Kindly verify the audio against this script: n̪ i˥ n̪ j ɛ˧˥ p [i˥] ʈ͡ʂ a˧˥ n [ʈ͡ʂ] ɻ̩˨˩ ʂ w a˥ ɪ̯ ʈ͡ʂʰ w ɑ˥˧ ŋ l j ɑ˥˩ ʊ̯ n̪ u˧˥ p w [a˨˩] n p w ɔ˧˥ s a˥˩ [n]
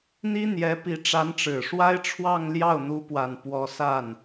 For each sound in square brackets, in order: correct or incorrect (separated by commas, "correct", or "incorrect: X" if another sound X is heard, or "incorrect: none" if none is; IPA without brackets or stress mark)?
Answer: incorrect: i˧˥, correct, correct, correct